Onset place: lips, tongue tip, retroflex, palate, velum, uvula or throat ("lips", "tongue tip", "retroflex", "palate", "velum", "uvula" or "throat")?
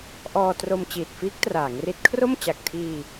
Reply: throat